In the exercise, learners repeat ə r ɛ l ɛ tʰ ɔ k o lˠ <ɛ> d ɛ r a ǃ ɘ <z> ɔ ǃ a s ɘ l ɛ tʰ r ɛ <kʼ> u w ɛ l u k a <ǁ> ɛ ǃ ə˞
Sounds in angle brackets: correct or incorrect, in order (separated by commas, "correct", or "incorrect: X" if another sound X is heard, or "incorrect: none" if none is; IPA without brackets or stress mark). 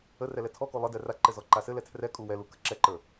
incorrect: ɘ, correct, correct, correct